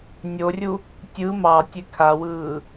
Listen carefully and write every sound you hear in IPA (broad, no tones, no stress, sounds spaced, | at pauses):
nʲ o rʲ u | tʲ ɯ m ɑ tʲ e kʰ a w ɯː